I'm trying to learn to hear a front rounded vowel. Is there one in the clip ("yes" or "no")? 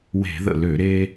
yes